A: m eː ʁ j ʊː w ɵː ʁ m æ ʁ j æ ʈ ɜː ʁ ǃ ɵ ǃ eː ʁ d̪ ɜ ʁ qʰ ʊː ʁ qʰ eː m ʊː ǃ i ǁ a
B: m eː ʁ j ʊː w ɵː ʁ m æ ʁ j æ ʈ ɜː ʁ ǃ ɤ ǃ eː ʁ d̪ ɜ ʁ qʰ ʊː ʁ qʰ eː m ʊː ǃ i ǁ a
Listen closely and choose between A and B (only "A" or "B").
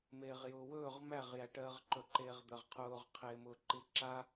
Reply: A